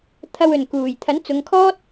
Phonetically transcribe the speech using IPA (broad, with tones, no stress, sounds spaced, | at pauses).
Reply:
t̪ʰ ɐ˧ w ɵ˨˩ n k uː˨˩ j t̪ʰ ɐ˨˥ n t͡s ʊ˨˧ ŋ kʰ ɔː˥ t̚